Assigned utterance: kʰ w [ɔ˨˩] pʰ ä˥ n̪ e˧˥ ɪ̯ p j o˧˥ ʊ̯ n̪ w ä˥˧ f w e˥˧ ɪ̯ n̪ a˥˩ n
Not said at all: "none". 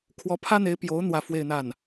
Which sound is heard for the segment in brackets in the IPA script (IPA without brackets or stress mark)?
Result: ɔ˧˥